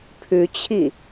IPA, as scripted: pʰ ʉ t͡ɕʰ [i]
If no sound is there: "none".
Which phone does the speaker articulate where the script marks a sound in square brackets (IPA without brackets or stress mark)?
i